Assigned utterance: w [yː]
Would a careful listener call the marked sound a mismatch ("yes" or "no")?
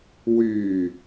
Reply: no